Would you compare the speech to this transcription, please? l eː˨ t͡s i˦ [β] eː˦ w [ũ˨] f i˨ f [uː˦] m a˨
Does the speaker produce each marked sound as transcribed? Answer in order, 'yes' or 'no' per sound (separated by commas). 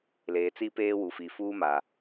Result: no, no, yes